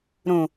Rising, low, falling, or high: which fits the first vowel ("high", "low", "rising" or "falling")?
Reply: low